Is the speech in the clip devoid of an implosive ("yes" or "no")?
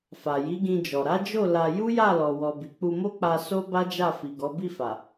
yes